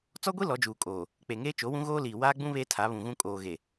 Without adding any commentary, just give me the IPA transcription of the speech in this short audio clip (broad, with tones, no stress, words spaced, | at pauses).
t͡sɔ˦ɡʷi˦ lɔ˨˦d͡ʒuː˨kʼoː˨ | k͡pe˨ŋeː˦ t͡ʃo˨˦wũ˦ɣoː˦liː˨ waː˦ɡ͡bũ˦ βe˦tʰa˨˦βũ˨ɣũ˦ kʼoː˨ɣe˨